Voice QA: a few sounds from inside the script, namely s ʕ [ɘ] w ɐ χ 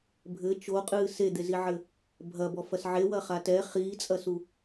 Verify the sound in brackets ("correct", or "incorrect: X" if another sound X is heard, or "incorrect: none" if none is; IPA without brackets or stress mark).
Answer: incorrect: e